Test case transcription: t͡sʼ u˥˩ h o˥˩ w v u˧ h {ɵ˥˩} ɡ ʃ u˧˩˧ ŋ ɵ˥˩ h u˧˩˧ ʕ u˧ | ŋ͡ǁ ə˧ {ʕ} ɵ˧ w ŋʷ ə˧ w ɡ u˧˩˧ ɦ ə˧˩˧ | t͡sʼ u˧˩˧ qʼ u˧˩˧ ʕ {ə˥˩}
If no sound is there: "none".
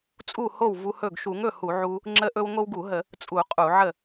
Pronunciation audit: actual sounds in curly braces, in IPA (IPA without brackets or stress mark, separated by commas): ɵ˥˩, ʔ, ə˥˩